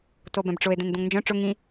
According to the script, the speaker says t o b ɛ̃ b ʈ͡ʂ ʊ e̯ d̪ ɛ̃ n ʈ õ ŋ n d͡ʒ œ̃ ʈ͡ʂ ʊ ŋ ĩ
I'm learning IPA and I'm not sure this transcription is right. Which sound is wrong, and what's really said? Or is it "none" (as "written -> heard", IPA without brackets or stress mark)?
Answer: ʈ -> d̪